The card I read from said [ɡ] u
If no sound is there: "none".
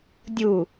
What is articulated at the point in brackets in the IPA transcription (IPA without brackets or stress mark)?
dʲ